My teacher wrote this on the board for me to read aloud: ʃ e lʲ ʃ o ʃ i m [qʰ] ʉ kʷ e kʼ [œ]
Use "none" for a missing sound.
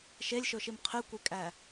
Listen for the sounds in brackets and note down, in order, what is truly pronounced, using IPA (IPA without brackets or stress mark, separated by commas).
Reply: qʰ, æ